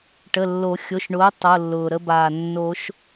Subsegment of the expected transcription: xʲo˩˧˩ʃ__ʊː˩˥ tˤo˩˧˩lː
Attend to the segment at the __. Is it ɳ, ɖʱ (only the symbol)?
ɳ